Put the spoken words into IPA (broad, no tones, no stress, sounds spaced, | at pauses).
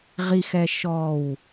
ʁ i x ɛ ʃ ɔ w